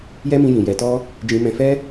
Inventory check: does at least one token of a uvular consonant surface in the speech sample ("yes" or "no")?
no